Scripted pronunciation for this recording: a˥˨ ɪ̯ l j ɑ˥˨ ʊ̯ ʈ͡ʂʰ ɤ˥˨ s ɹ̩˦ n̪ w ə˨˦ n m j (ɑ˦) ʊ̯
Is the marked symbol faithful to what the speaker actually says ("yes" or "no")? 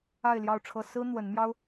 yes